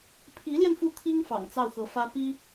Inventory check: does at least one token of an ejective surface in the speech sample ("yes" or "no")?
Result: no